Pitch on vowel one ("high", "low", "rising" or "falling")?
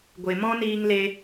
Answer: low